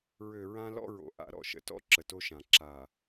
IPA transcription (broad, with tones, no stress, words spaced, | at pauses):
ɹø˨ ɹã˦lɔ̰˦ɹo̰˨ ʔa̰˨˦ɾɔ̰˨ʃə̰˨tɔ̰˦ ǁə˨to˦ʃã˨ ǁa˨